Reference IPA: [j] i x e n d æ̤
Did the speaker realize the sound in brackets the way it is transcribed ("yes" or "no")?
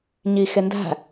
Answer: no